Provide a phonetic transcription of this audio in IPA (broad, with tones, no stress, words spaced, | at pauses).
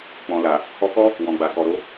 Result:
k͡pɔ̃˨la˨ | hɔ˧kɔ˦ | wɔ̃˨ɡ͡ba˨ kɔ˨ɾo˧